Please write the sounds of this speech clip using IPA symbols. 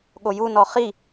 ɠ o j u n ɔ χ i

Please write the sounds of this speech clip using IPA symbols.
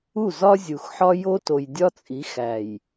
u˦˨ z ɒ˦ zʲ u˨ x ħ ɒ˦ j o˦ t o˨ j dʲ ɒ˦ t͡sʼ i˨˦ x æ˨ j

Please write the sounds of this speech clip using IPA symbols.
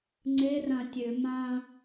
ŋ͡ǀ e r ã tʲ ø m ã

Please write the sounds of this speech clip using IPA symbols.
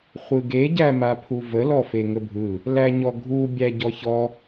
χʷ ɯ ɡ e ɟ æ m a pʰ u v ə l ɔ f e ŋ ə bʱ ɯ | l æ ɲ ɔ ɡʱ u bʲ æ ɟ ɔ ç ɔ

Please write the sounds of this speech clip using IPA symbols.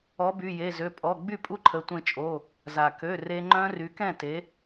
ɔ˩˥ b y˩˧˩ j e˩˧˩ z ø˩˧˩ pʼ ɔ˩˧˩ ɡ͡b y˥˩ pʼ u˦˥ ǃʰ ə˩˥ tʷ ẽ˧ t͡ʃʼ o˩˧˩ | z a˩ k ø˩˧˩ r e˧ ŋ͡ǃ œ̃˦˥ r y˩˥ k ɛ̃˥˩ t e˩˥

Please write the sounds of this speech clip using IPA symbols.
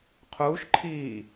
qʰ uː ʃ ǃʰ iː

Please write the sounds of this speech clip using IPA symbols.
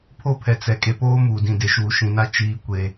pʰ o˦ pʰ ɛ˨ t͡s ɛ˨ kʼ e˨ p oː˦ m uː˨ d ĩ˨ d e˨ ʃ uː˨ ʃ ĩ˨ n a˦ t͡ʃ iː˨˦ kʷ e˨

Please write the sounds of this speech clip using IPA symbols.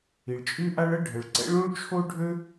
i˩ ɭ t͡ʃʼ y˥ ʔ a˥ ɭ ə˥ ɖʱ ə˩ ɭ ǀ ɛ̰˥ ɭ ũ˥ ɭ t͡ʃʰ o˥ ɖʱ ø˥

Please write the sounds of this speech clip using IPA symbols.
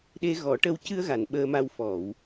ɗ e˧ ɣ ɔ˨˩˦ ʈ ə˧ w c ɨ˧ ə̯ ɣ a˨˩˨ n ɓ əː˧ m a˧ w f ɔ˨˩˨ w

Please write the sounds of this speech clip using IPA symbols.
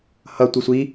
h ʌ tʷ i sʷ i

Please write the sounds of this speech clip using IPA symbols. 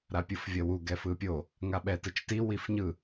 ɾ a pʲ ɯ f vʲ ʌ w u ɡ ɛ f ɯ pʲ o | ŋ a ɓ ɛ t ɯ t͡ʃ t i w i f ɲ ɯ

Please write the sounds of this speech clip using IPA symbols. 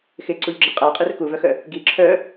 x ɪ ǀ u ʎ ɡ͡ǁ ɪ qʼ a qʼ e r k u v œ x œ | ɡ i ǁʰ œ

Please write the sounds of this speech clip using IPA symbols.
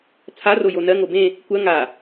t͡sʰ a r o j o n ɜ ŋ o b ẽ | kʷ ɜ ŋ a

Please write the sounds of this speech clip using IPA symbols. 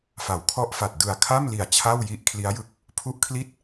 f a˩˦ w kʰ ɔ˦˥ ʔ f a˨˩ t̚ d ɯ˨˩ a̯ kʰ a˥˩ m l i˨˩ a̯ t͡ɕʰ a˥˩ w j i˦˥ ʔ kʰ l i˦˥ a̯ j ɯ˦˥ k̚ | pʰ u˦˥ ʔ kʰ l i˥˩ t̚

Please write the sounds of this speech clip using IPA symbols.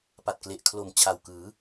p a˨˩ t̚ k l e˨˩ ʔ kʰ l o˨˩ m t͡ɕʰ a˨˩ w k ɯː˩˦

